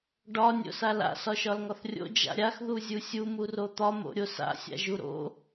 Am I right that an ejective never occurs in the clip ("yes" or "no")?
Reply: yes